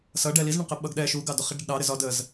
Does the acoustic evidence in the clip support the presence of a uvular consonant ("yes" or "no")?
yes